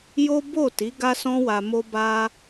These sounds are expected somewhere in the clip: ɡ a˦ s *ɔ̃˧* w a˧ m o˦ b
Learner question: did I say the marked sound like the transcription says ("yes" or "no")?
no